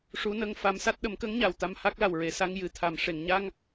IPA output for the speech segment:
ʂ u˧˥ n ə˧ ŋ f a˧˥ m s a˦˥ t̚ ɗ ə˨˩˦ m k ə˧˥ ŋ ɲ a˨˩ w t̪ a˧ m h a˦˥ k̚ l a˨˩ w ɹ e˨˩ s a˧ ŋ j ɨ˨˩ t̪ʰ a˨˩ m ʂ e˨˩˨ ŋ ɲ a˧ ŋ

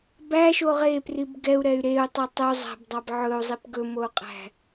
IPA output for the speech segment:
b æ ʃ o ʁ e p r i b ɡ ɛ u̯ ɾ ɛ y̯ ɾ e u̯ tˤ o tˤ ɵ zˤ æ̤ b dˤ ɑ b ʕ ɵ u̯ zˤ i p ɡ ɵ m o u̯ qʼ æ̤

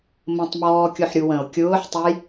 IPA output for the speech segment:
m ə̃ tˤ m ɔː kʲ ʊ ħ ɾʲ u w ə̃ o̯ kʲ ʊː ħ tˤ ʌ j

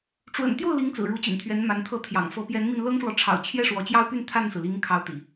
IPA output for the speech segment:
ʈ͡ʂ w ə̰˨˩ n t̪ j o˥˩ ʊ̯ l i˧˥ ŋ t͡s ɹ̩˨˩ ɻ u˧˥ t͡ɕ y̰˨˩ n t̪ʰ ɥ ɛ˧˥ n m a˧˥ n t̪ʰ ɤ˥˩ t̪ʰ j ɑ̰˨˩ ŋ f ɤ˧˥ p j ɛ˧˥ n m i˧ n l ɤ˥ ŋ ʂ w ɔ˨ ʈ͡ʂʰ ɑ̰˨˩ ʊ̯ t͡ɕʰ j ɛ˥˩ ʂ w ɔ˧˥ t͡ɕ j ɑ˥ ʊ̯ p y˥˧ n t̪ʰ a˥˩ n s ɹ̩˩ l i˧˥ ŋ kʰ ɑ˧˥ ʊ̯ t̪ ḭ˨˩˦

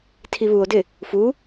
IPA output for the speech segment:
tʰ i β u o̯ d ɪ | f u

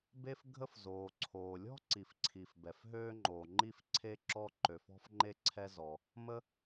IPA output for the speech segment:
b e˥ f ɡʱ ə˥ f z oː˩ ǀʰ oː˩ lʲ ɔ̤˥ ǀ i˩ f ǀʰ i˩ f b ɛ˩ f ɦ øː˥ ŋ͡ǃ oː˩ ŋ͡ǃ i˥ f ǀʰ e˥ ǁ ɔ˥ ǃ ø˩ f ɔ̤˥ f ŋ͡ǃ e˥ ǀʰ ɛ˥ z ɔ˩ | m ə˥

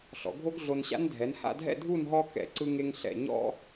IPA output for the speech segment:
ɬ ɔ̰˩˧ ɡʱ o˥ ɡ ɮ o˧ n ɕ a̰˥ n dʱ ɛ˩˧ n h a̰˥˧ dʱ ɛ̰˥˧ dʱ u˥˧ n ɦ ɔ˥ k ɛ̰˧ ǀ ɯ˥ ŋ e˥ ŋ ɬ ɛ̰˧˩ ɲ ɔ̰˥

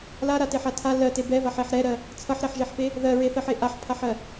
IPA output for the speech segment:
l a ɾ a t e ħ a tʰ a l ɜ t e b ɛ v a ħ e ħ ɾ ɛ ɾ ɜ | t͡sʰ ʌ ħ ɾ ɛ ħ ʒ e ħ p e | ð ɜ ɹ e θ ɜ ħ e ʔ a ħ pʰ a ħ ɜ

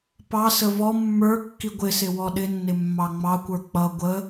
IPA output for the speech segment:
p ɑ s ə v ɔ mː ə˞ kː i ɡʷ ɪ s ɪ w ɔ ɗ ɪ nː ɪ mː ɑ ŋ͡m ɑ kʷ ə˞ k͡p ʌ ɡʷ ə

